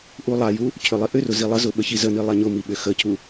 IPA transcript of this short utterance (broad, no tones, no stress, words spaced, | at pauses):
ʔulˠaju | cʰʏlˠiʔʏrʊ zilˠəzʊ ɓəçizəni lˠaɲʊmi ɓʏxəcʰu